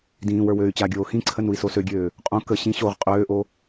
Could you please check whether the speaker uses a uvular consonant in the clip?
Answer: yes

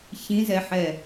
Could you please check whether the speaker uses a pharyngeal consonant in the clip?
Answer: yes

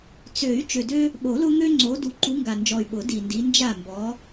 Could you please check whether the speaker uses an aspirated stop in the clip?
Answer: no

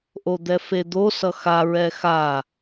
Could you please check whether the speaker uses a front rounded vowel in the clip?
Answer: no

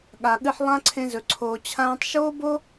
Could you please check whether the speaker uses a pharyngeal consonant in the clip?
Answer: yes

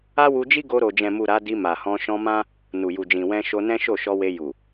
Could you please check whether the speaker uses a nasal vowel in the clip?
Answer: yes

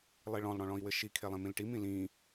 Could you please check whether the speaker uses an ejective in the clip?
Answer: no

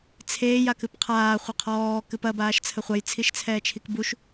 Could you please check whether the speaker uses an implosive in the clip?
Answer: no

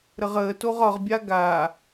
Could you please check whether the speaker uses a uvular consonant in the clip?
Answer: yes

